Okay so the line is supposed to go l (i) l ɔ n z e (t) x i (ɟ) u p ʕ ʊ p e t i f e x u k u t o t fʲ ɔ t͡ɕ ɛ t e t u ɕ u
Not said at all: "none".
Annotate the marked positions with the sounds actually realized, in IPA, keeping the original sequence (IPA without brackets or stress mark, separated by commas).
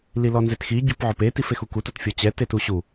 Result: i, t, ɟ